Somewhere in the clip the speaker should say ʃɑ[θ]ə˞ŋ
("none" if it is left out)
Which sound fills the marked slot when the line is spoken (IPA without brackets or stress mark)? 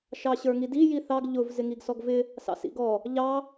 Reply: ɕ